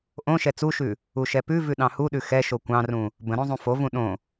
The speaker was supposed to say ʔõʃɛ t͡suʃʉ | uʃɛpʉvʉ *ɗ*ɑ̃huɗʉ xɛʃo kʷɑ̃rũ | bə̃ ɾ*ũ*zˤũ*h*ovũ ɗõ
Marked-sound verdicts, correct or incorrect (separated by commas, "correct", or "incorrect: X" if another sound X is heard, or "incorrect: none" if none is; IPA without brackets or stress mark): correct, incorrect: õ, incorrect: f